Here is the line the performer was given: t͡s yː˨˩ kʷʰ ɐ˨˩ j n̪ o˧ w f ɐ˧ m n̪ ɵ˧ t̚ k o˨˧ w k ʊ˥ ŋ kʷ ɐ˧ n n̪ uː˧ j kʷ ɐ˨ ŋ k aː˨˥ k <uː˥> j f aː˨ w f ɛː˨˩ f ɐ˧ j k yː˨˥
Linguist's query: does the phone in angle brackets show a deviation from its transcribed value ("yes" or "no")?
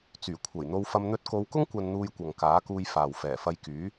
yes